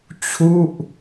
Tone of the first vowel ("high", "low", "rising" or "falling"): falling